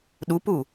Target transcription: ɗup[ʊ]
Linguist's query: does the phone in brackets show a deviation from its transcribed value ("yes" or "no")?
yes